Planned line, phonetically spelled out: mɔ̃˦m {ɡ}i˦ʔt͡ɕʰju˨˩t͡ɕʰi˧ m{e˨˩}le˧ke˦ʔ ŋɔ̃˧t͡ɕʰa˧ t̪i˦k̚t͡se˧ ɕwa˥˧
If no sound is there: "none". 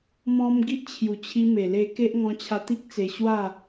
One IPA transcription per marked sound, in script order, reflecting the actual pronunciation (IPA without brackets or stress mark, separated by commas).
ɡ, e˨˩